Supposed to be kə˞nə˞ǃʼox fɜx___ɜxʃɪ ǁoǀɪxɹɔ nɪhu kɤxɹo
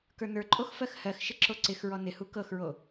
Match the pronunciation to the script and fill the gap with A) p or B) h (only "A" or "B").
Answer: B